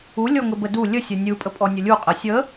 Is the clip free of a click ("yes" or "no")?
yes